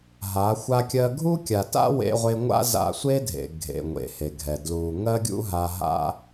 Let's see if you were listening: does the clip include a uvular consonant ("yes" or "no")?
yes